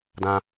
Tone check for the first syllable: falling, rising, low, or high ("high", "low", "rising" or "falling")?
high